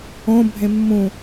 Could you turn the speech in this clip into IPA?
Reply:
õbʱẽ mːũ

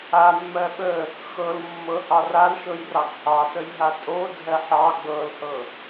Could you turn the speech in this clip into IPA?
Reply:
amːɜ ɓə | xɤlmːɤ hɑralʃɤj rɑɡhɑtəj ɦatʼodʱɜ ħɑ ɡ͡bɤlhɤ

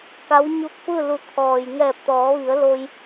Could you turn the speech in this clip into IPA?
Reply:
ka˧˥w ɲu˧˥k̚fɯː˥˨lu˧˩ t̪ʰɔː˩jŋɛː˧˩p̚t̪ɔː˩˧ʋi˩˧ə̯ lo˧j

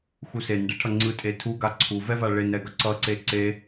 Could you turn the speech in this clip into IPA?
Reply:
xusenɖe ʈʰʌŋ͡ǀɯ tʼetʰuɡa ǀʰuvɛva ɭenɾɛɡʌ ǀʌǀe ǀe

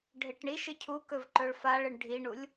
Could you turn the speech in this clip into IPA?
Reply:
ɖʱeʈɳiʃɨ cʰukɵv ǃɵɭfaɭɨɳ ɖʱiɳulʲ

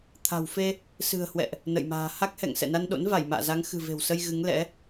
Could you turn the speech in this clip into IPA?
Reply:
t̪ʰa̤˨˩wfe˧ | sɨ̤˨˩ə̯hwɛ̰˧˨ʔ | nə̰˧˨jma̤ː˨˩ ha˦˥k̚hɛ̰˧˨ŋ sɛ̰˧˨na˧nɗo̰˧˥n va˧˩jma̰ː˧˨za˨˦ŋ xɨ̤˨˩ve̤˨˩wsə˧j ɣɨ˨˦ŋlɛ̰˧˥

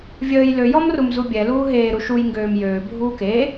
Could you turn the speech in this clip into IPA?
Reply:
vʲəːj lø jɔmrumzubʲɛ luːɦeː ɾuʃuj ŋɡøːmjøː bʱuːke

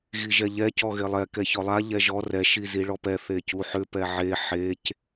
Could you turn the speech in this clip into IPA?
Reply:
ɣiʒɛʎɛ cɔɣelˠɛ kɛçɔlˠa ʎɛʒɔ rɛ ʃiziɭɔpɛ θecuħʏ pɛʕe ħec

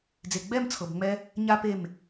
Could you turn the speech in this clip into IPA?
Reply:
d͡ze˨ɡ͡bɛ˦˨mt͡sʰɤ˨b ŋ͡mɛ˦ | ɲa˦pe˦˨m

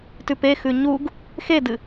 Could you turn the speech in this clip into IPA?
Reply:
tʉpexʉ ɲuɡ | xedɨ

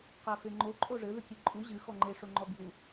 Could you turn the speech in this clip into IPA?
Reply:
qafeŋ͡ǃo ǃʼoʐɘ ðɨkʲeǃʼu ʑɨ xɔŋ͡ǃe ʂoŋ͡ǃɔbju

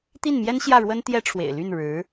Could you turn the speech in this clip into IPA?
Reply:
t̪i˥˩nmjɛ˥n ɕjä˥˩ɻwə˥n t̪jɛ˥ʈ͡ʂʰwḛ˨˩ɪ̯ ly˥˩nɻɻ̩˧˥

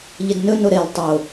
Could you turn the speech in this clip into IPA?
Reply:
ʎɪdnɵ noɾelˠ tˤo

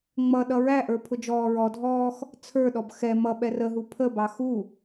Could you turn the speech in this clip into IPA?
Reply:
ŋ͡mʌɗʌ ɹæʔə˞ pʰʊd͡ʒɔːɹɔdʱɔːx | t͡sʰə˞ɗɔb xɛ mʌ ɓɛrəɦu pʰəbɑ xu

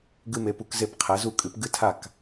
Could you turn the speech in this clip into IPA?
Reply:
ɡɨ˧me˩˧pu˩˧kze˧˩p qʰɛ˩˧zu˧˩kʼɨ˩˧p ɡɨ˧tʰa˧˩k

